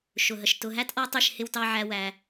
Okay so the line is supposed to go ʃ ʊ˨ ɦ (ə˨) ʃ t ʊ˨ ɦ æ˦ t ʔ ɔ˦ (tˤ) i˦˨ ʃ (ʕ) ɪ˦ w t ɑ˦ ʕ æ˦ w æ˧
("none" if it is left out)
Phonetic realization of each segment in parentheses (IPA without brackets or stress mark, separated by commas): ə˨, tˤ, h